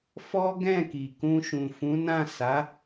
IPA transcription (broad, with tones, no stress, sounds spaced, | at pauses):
f ɔ˦ ɡ ɛ̃˦˨ k i˨ k ũ˧ ʃ ũ˨ f ũ˨˦ n ã˦˨ s a˨˦